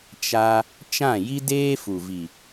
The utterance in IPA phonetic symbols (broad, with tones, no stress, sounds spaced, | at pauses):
t͡ʃ a˧ | t͡ʃ ã˦˨ j i˦ d eː˦ f u˨ v i˨